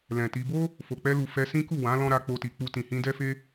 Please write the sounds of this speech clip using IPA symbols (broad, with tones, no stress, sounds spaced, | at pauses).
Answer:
l ɛ̃˨ t i˧ b o˦ | f o˨ k͡p ɛ˧ l u˨ f ɛ˧ s ĩ˦ k u˦˨ w ã˨˦ l ɔ̃˦ ɾ a˧ k͡p o˧ t i˨ k͡p u˧ t ĩ˨ h ĩ˧ d ɛ˦ f e˦